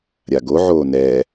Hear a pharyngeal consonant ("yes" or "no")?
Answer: yes